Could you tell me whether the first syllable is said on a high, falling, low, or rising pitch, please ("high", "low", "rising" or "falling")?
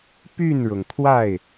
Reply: falling